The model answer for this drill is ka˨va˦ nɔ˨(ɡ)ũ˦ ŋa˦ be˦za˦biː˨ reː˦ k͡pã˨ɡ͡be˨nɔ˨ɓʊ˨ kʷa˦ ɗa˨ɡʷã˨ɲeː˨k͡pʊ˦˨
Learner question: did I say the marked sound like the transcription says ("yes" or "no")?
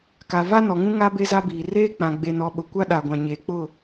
no